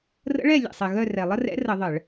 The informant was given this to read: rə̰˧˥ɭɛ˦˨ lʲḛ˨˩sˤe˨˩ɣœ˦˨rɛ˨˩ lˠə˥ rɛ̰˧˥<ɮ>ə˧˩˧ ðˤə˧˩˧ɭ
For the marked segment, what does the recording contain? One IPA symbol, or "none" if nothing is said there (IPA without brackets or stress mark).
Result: r